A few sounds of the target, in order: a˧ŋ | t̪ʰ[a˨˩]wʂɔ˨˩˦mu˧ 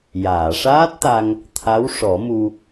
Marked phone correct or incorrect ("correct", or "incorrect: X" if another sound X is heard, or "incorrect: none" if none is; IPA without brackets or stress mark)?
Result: incorrect: a˧˥